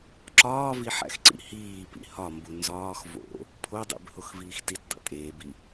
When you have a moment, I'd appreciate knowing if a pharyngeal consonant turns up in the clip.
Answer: yes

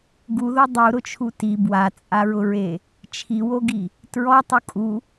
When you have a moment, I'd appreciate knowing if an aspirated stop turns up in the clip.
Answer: yes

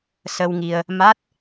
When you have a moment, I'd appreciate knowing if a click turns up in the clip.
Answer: no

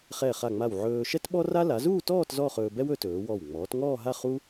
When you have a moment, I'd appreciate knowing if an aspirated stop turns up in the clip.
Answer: no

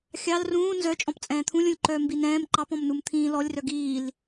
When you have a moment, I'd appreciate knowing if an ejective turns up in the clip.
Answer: yes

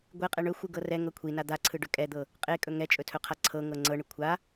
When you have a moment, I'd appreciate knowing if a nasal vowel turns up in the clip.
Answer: no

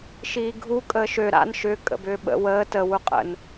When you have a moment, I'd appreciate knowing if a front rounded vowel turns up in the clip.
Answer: yes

